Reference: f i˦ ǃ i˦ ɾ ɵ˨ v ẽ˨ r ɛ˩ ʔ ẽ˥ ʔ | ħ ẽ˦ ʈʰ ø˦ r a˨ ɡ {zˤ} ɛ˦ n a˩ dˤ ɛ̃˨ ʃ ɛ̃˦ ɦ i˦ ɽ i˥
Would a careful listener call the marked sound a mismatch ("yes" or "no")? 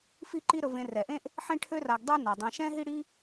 yes